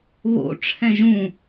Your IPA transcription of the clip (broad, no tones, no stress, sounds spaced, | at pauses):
β o̰ ʈ͡ʂʰ ɛ̃ ʒ ũ